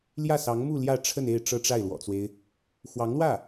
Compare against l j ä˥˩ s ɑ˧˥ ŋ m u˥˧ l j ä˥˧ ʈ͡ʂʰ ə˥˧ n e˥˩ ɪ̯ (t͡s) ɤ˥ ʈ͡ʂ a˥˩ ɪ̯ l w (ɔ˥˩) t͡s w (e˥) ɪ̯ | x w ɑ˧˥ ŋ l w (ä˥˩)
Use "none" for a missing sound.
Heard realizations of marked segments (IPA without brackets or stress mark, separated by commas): ʈ͡ʂ, ɔ̰˨˩, e˦, ä˥˩